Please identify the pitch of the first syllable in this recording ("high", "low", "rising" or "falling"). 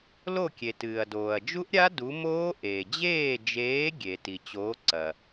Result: falling